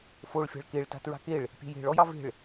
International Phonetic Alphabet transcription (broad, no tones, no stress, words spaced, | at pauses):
foɭ fʲa̤ɭkeɭ ta̤tɹa̤keɭ | pʲe̤je̤ɭ ɔjɑve̤ɭ